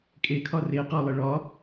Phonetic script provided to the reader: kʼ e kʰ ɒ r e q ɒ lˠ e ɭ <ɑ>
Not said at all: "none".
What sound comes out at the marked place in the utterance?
ɒ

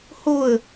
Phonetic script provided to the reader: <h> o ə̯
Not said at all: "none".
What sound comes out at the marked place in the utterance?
h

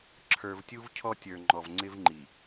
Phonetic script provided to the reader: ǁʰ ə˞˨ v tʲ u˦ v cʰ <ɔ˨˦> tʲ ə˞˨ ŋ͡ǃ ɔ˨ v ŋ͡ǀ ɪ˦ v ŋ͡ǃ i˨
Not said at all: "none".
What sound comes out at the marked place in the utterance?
ɔ˦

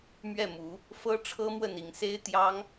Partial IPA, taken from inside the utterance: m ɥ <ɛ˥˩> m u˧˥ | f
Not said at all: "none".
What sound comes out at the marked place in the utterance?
ɛ˥˩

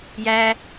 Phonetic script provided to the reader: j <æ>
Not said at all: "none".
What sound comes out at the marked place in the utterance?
æ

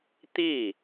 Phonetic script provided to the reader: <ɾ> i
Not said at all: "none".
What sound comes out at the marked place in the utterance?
t̪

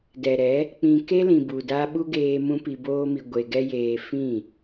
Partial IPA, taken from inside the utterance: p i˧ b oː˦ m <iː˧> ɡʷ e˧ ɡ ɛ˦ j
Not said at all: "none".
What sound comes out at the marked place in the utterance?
i˧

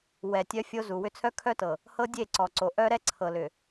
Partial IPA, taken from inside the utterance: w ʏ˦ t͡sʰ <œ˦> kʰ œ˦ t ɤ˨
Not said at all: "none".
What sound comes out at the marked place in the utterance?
œ˦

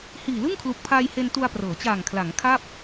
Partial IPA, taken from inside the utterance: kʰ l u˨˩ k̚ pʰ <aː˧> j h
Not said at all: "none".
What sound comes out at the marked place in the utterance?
aː˧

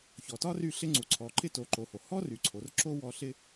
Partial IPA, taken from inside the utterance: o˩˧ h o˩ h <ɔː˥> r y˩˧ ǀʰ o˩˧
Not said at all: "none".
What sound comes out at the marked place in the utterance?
ɔ˥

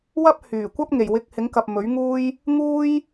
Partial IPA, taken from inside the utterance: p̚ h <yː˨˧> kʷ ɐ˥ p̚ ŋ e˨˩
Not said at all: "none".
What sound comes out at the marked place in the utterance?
yː˨˩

